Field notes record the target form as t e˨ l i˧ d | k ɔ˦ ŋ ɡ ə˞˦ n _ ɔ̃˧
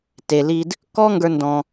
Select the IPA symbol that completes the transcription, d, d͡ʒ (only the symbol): d